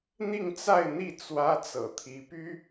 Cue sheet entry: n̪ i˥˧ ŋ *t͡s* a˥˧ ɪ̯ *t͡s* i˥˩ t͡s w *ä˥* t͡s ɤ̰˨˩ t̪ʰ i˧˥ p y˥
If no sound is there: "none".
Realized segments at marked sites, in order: t͡s, n̪, ä˥

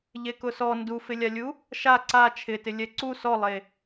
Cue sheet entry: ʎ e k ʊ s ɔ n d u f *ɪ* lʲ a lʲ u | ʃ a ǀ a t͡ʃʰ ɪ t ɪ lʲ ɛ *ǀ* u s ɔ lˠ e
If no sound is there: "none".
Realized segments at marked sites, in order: ɪ, ǀ

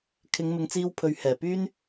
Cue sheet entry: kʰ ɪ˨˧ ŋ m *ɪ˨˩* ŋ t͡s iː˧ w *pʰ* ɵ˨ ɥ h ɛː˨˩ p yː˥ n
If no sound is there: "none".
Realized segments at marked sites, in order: ɪ˨˧, pʰ

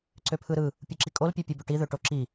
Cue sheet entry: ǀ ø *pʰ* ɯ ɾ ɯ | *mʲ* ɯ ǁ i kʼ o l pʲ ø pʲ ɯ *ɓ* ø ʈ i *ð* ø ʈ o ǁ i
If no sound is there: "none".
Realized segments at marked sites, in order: pʰ, pʲ, b, ð

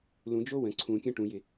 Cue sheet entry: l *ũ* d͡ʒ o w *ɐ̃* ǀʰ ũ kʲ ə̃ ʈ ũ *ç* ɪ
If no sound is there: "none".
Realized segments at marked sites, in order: ũ, ə̃, j

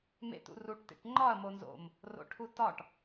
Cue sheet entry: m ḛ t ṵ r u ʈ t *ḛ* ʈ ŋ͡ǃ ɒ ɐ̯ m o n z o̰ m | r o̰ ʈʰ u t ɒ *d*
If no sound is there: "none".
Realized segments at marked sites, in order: ḛ, ʈ

